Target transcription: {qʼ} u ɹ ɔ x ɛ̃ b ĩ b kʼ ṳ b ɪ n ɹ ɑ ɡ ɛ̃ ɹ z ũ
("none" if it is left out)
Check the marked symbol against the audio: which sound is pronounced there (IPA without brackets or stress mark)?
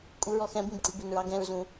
kʼ